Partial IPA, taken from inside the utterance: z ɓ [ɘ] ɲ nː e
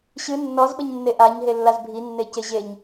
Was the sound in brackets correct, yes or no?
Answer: yes